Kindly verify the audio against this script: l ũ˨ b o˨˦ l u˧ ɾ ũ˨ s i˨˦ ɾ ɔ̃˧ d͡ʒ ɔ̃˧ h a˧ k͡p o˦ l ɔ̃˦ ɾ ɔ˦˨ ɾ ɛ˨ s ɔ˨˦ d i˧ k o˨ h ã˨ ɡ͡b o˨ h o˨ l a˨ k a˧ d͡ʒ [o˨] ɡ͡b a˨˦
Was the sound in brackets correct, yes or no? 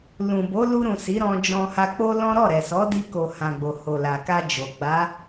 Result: yes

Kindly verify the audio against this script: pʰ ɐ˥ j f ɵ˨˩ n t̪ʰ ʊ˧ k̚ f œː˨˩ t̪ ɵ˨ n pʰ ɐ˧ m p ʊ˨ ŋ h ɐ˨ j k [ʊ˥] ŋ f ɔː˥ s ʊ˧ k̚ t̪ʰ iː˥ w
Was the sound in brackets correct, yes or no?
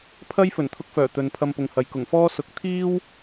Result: no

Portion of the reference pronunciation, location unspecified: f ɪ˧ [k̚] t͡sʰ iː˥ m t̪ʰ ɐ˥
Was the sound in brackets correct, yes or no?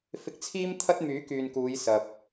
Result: yes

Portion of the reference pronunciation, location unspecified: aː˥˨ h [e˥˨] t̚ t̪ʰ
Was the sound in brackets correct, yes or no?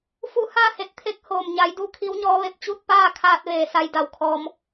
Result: no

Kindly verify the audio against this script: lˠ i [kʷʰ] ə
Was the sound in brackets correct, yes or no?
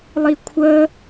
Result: yes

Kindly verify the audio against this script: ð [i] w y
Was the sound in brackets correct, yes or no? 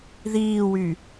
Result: no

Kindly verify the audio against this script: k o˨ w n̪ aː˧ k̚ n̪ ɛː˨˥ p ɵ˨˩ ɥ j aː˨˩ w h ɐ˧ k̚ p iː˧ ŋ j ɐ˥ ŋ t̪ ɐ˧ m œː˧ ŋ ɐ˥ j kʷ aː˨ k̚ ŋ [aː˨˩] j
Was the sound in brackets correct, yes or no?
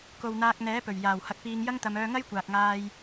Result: no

